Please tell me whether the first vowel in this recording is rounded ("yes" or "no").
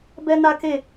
no